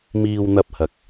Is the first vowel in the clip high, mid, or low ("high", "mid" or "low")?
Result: high